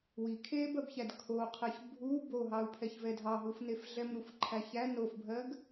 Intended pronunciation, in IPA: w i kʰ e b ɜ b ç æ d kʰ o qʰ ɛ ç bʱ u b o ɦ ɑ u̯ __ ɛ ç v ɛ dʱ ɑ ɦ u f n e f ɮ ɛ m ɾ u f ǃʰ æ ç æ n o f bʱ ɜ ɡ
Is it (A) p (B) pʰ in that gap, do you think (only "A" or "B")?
B